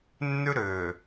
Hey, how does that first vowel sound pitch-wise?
high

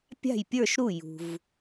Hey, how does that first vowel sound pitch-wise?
falling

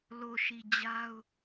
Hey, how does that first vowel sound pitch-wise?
low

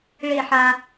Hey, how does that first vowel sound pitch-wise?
falling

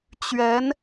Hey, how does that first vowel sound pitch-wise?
rising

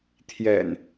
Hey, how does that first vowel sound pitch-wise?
low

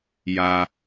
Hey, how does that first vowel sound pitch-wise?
high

